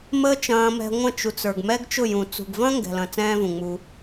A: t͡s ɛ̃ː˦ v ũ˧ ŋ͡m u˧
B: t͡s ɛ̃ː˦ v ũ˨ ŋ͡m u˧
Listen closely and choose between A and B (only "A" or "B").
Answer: B